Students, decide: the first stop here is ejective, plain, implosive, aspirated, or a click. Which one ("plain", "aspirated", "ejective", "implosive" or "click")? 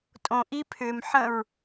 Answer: ejective